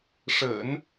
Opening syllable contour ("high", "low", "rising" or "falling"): low